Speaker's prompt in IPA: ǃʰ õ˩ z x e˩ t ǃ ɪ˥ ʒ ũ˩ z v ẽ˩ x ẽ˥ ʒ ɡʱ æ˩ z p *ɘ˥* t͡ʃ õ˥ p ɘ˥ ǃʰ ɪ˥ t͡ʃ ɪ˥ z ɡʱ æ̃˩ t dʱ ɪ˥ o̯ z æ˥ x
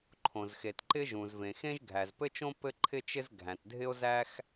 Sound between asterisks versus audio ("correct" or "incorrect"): correct